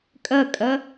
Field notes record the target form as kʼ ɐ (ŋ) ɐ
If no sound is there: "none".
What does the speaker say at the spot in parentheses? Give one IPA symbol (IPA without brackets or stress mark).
kʼ